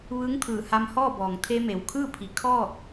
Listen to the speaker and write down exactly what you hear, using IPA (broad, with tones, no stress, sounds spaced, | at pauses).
ʋ ɯː˧˥ ŋ t̪ʰ ɯː˧˩ h a˧ m h ɔː˥˨ b ɔː˩ ŋ t̪ʰ e˧ m e˩ w kʰ ɯː˥˨ pʰ i˩˧ kʰ ɔː˥˨ k̚